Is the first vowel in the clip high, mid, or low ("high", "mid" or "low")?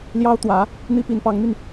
low